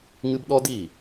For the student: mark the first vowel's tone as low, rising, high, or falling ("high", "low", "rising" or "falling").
high